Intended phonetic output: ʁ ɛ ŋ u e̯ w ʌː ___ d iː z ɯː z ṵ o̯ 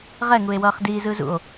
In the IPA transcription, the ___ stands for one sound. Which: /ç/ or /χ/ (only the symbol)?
χ